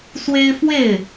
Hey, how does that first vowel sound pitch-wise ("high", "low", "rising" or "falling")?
high